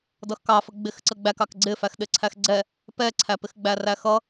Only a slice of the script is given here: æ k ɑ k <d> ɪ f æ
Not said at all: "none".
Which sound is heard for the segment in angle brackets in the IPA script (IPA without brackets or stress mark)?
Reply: ɡ͡ǀ